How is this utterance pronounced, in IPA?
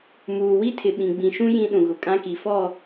muː˨ wi˦tʰɪ˨ ɓĩ˨ ɡ͡bĩ˨ʃũ˦ jĩ˦ɗũ˨ɣʊ˨ kʼã˦ki˨fɔ˦˨

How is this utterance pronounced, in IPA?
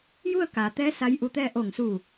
ju˥˨ə̯kaː˩t̪ɛː˧˥ sa˧˥jʔu˧t̪ɛː˥˨ ʔo˧˩ŋsu˧˩

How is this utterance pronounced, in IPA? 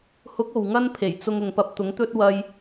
hʊ˨˥k̚ o˨wŋɐ˥npʰe˨˩j t͡sʊ˧ŋʊ˨ŋpɐ˧p̚ t̪ʊ˨˥ŋt̪ɵ˥t̚ wɐ˧j

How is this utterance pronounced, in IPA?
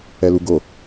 ɛluɡo

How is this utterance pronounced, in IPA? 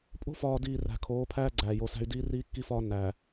pʼo̤˦fɒː˨diː˨ ræ̤˨kʰoː˨˦pʰæː˦ ɡ͡ǀæː˨jo˨˦sæ̤˦y̯ diː˦riː˦kːi˦fɒː˦ nːæː˨

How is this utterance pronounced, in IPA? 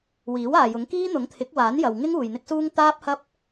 wiː˨˥waː˨jʊ˨˥ŋ kiː˥n̪ʊ˨˥ŋt̪ʰɪ˨˥k̚ waː˨˥njɐ˨wŋɪ˥ŋ uː˨jn̪ɪ˥k̚suː˥ŋ t̪aː˥p̚hɐ˥p̚

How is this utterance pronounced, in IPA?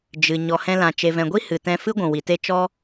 d͡ʒɨ˨ ɲɔ˨hɛ̃˧lã˨ t͡ʃe˨vɛ̃˨ɡʷi˦ hɨ˨tɛ̃˧ fɨ˦ ɡʷũ˨wi˨te˦ t͡ʃɔ˦

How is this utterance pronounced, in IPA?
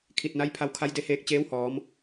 kʰi˧˩t̚na˧˥jpʰa˧w kʰa˧˥jde˧heː˧k̚ t͡ɕeː˧˥whɔː˩˧m

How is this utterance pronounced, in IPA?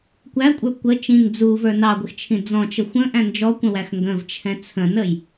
kʷækʷʼə˞ kʷə t͡ʃĩŋ d͡zuvə˞ nɑɡʷɪxt͡ʃʰĩ d͡zɔ̃t͡ʃə xʷə̃ʔæ̃ nd͡ʒɔkʷə̃wæx ŋɡə̃vt͡ʃʰɛ̃ t͡sʰə̃nəj

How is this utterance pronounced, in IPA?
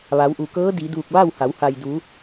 ʋa˩˧wʔu˩kɤː˧˥ di˩˧duː˧˩k̚ʋa˥˨wha˩˧w ha˩jdu˩˧

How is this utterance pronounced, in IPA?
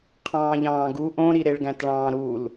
qʰɑ̃ːʎɑ̃ːɡu ʔõɾi ɾeɭɡæ̃tɭɑ̃ːɾul

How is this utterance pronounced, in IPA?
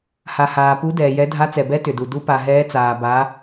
ha˩haː˩ pu˨˦ dɛː˩jɛ˨˦ dʱa˨˦t͡sɛ˩bɛ˨˦ tʏ˩du˩ du˨˦pa˩ɦɛː˨˦t͡saː˩ ba˨˦

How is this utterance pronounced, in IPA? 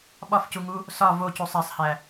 ɓɒfcuŋu | sɒ vo cusˤæsˤhæ

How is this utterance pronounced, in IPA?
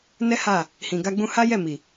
nɛ˦ha˦˨ | hĩ˨ɡa˧ɡ͡bũ˧ ha˦ jɛ˦˨mi˨

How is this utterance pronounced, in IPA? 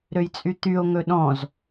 ɾøjt͡sʼyt̪yo̯ ŋɵɗɔ̃z

